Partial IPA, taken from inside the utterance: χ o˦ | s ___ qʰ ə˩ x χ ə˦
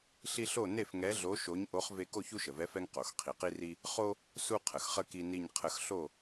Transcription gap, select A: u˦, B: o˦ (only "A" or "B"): A